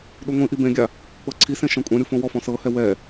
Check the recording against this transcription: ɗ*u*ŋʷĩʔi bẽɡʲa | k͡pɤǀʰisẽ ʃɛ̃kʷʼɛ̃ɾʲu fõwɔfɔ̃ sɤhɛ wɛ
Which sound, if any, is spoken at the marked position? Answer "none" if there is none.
u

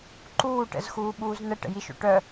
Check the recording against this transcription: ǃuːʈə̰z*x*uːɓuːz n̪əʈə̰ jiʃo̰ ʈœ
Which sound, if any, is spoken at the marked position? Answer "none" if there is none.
x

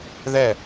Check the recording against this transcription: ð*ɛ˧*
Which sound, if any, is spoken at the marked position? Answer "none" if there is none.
ɛ˥˩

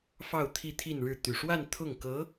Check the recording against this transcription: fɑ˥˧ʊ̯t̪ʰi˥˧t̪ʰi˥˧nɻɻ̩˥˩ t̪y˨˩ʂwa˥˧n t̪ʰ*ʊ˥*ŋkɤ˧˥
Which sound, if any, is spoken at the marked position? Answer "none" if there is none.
ʊ˥˩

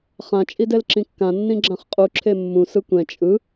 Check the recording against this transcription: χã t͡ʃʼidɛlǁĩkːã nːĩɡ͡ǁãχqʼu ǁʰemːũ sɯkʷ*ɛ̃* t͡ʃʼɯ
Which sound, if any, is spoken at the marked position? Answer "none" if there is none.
ɛ̃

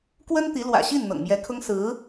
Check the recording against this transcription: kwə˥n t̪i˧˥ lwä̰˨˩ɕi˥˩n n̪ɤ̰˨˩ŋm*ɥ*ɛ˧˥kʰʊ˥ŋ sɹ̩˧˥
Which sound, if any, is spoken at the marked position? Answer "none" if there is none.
j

